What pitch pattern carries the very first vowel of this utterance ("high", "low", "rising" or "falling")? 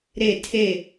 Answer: falling